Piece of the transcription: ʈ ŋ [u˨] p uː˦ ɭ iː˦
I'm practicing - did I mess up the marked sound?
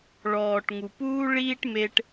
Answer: no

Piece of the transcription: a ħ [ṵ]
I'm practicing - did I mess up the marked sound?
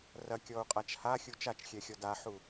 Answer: yes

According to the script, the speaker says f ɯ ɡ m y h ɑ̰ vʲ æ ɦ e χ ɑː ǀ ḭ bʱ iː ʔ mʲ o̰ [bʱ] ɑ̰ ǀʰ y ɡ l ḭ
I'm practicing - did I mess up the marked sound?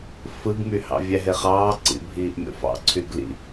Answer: yes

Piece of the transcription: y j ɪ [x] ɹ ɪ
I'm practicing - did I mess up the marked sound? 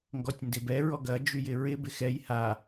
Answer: yes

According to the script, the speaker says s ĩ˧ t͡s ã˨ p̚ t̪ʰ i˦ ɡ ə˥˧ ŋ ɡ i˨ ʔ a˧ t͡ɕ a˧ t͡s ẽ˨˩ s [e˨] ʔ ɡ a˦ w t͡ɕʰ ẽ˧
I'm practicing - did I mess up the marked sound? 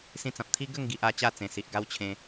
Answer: yes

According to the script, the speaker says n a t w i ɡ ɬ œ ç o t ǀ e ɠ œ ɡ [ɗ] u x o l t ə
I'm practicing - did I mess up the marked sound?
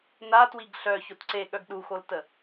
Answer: no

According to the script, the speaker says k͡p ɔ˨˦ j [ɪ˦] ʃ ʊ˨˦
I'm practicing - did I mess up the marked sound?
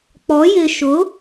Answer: yes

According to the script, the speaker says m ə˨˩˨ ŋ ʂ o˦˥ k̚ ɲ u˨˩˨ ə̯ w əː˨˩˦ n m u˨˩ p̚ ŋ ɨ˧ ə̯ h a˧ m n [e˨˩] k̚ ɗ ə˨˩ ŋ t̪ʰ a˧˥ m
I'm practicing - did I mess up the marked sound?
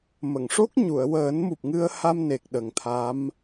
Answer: no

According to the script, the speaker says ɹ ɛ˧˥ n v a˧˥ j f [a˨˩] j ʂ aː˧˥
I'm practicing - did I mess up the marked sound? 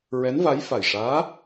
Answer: no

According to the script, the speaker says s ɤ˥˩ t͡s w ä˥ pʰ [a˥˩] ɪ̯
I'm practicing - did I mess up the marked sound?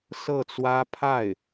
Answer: no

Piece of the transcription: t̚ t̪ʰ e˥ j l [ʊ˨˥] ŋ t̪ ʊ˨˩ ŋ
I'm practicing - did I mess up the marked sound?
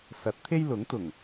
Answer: no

